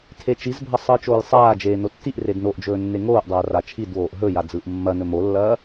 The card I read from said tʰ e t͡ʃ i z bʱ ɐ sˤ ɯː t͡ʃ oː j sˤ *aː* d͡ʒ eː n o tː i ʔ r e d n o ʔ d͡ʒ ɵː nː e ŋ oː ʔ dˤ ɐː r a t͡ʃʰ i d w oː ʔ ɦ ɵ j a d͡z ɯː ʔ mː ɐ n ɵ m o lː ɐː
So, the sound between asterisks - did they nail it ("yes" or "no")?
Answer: yes